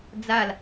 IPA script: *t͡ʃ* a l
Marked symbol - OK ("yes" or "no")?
no